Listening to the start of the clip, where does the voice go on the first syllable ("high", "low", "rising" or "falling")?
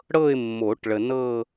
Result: falling